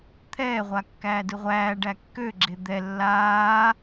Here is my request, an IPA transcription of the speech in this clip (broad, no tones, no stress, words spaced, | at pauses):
t̪ʰɛːʁʷa kːæːdɯʁʷæːɖæ kːøɡ͡ǁe d̪ɛ lːaː